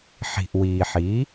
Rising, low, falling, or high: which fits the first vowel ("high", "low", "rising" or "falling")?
low